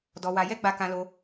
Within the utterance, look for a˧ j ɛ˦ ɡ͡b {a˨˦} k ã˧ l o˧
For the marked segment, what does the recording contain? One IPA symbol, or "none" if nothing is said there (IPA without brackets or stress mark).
a˧